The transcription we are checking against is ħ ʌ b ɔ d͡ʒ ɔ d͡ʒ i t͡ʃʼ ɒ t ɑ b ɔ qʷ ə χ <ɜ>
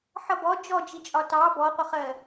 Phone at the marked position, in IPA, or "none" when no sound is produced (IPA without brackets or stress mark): ɜ